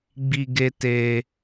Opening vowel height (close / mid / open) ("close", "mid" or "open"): close